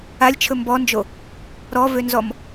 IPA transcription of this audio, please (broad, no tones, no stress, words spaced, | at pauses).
alʲt͡ʃʰɵ mbɔnd͡ʒo | ɾɔvønzɔm